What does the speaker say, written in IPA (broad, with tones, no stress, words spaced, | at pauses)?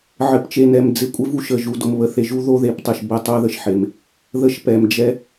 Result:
ʕɘ˨pt͡ʃe˨nɛ˨m d͡zɪ˨ kʷʼɪ˦ vu˦ʃə˨ʒu˨ do˨mβə˨θe˨ʒu˦ ðo˦ðe˨ptˤɪ˨ʃ bɘ˦˨ tˤo˦ðə˨ʃħe˨m | ðə˦ʃpɛ˨m d͡ʒɛ˦